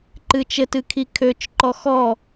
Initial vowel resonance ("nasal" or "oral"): oral